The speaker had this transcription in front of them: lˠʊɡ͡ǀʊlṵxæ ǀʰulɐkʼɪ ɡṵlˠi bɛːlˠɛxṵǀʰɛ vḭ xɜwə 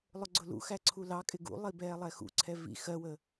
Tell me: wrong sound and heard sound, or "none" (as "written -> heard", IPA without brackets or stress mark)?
ɐ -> ɑ